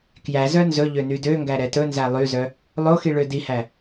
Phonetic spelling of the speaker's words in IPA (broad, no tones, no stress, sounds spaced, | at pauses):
k j æ z œ n z ɵ ʎ ø n y d ø ŋ ɡ æ ɾ ɛ t ɵ n z æ lˠ y z œ | lˠ o x i ɭ ø d i h æ